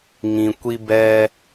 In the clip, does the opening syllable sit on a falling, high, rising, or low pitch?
low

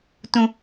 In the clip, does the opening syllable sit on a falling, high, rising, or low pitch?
low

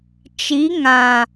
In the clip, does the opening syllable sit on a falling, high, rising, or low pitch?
rising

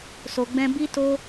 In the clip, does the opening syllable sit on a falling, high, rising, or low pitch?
low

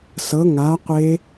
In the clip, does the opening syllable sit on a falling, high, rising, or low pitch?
rising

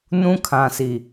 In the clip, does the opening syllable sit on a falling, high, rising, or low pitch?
high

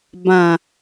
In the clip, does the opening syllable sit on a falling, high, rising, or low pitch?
low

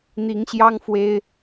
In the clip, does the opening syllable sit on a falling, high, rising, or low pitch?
rising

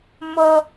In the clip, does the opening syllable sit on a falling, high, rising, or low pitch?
high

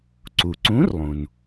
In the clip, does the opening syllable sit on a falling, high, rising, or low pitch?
low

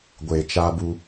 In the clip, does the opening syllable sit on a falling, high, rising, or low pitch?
low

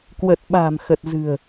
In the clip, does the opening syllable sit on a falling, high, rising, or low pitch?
low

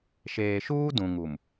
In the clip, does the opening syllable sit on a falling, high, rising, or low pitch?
low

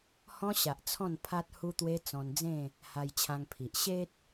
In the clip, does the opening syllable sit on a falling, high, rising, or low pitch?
high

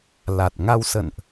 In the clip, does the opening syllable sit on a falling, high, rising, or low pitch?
low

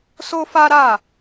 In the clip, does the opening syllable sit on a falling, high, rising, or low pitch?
high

